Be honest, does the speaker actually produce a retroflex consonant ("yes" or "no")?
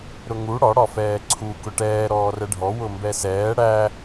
yes